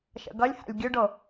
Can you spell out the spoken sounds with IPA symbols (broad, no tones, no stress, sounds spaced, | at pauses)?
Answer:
ʃ ə̰ ɡ ʌ lʲ h a̰ lʲ ɡʲ u ɖ o